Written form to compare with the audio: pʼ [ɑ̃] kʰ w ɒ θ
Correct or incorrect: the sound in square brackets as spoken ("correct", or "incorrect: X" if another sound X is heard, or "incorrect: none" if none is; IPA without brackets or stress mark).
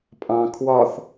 correct